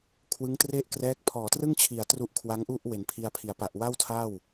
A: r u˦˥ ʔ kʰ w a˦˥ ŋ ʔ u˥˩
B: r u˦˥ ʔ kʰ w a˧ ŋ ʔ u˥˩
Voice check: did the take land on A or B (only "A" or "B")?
A